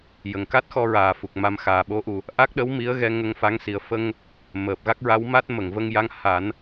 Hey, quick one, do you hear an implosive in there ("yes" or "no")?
yes